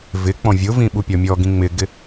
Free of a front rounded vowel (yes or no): yes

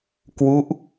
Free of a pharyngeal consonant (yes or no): yes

